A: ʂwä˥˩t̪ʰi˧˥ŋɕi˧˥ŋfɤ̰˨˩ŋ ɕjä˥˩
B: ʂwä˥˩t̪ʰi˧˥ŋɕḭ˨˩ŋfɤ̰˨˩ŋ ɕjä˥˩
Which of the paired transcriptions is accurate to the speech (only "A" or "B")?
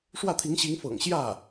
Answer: A